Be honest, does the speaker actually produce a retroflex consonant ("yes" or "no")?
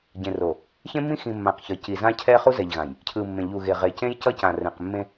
no